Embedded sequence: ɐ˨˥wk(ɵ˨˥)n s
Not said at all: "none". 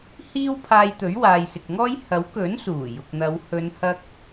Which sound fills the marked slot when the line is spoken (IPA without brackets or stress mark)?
ɵ˨˥